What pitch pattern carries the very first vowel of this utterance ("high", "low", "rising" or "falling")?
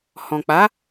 low